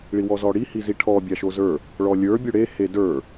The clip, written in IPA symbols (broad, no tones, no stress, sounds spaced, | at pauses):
ɭ i w ɔ z ɔ ɽ i h i z i ʈʰ ɔ bʲ a ʃ o z ə˞ | ɭ ɔ lʲ ə˞ bʲ o ɽ e h e d ə˞